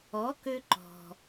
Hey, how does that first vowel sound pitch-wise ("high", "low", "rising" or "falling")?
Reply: rising